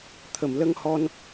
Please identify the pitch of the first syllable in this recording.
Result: low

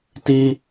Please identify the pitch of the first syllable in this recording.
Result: high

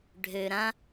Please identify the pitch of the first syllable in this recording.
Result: low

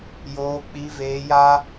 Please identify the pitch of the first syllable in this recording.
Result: high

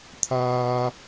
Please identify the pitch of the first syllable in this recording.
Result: high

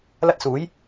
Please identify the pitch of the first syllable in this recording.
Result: high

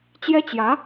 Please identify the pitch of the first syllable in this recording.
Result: high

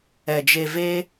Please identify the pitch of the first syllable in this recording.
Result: low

